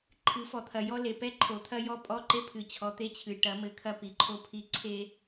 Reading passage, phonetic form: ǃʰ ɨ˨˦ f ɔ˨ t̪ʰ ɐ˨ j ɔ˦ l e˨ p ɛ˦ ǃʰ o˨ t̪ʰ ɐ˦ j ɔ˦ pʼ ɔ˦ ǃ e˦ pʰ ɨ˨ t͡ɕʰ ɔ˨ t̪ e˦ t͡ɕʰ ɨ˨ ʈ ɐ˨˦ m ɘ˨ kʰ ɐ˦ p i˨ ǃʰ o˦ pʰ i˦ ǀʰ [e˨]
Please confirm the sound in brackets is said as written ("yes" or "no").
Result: no